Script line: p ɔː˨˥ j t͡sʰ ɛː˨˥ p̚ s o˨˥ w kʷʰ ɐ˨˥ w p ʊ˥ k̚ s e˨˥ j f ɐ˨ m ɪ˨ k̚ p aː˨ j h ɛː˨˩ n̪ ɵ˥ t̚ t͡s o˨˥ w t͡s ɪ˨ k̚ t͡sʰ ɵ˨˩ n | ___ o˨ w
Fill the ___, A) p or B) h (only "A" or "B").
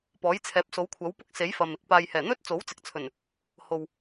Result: B